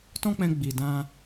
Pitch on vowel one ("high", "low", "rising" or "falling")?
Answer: high